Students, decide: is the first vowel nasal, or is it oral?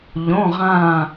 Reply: nasal